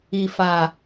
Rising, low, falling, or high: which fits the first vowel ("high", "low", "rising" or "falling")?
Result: low